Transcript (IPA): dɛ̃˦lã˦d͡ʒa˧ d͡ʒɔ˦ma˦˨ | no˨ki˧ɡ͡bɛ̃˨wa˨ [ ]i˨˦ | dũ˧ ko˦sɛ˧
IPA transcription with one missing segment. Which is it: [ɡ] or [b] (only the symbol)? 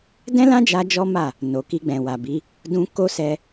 b